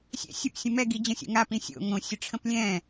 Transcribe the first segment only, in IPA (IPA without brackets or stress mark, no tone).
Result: sʲ